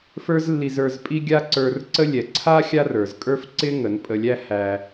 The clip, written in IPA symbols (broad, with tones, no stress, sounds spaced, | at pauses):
f ə˞˦ z lː i˧ z ə˞˧ z pʼ i˦ ɡʲ a˦ ǀ ə˞˧ r ǀ ə˦ lʲ ɛ˨ ǀʰ a˦ xʲ a˦ r ə˞˨ z kʼ ə˞˦ f ǀ ɪ˦ ŋ ə˨˦ n pʼ ə˧ lʲ æ˦ h æ˧